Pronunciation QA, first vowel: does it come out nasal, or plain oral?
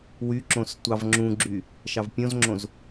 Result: oral